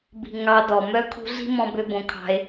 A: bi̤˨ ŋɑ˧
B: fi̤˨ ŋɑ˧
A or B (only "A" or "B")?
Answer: A